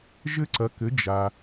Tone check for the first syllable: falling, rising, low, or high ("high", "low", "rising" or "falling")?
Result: high